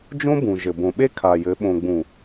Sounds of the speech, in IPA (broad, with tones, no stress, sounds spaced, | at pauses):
d͡ʒ õ˦ b ũ˨ ʒ ɘ˨ b õ˨ ɓ e˦ kʰ a˨ j ɘ˨˦ ɓ õ˨ ɡ͡b ũ˨